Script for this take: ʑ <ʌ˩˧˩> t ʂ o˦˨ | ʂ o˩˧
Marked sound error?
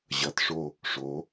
no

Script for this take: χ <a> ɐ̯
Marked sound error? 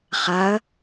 no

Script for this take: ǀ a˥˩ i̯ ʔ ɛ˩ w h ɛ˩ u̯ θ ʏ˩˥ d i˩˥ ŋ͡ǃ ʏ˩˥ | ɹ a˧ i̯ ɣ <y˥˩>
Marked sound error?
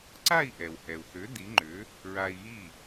yes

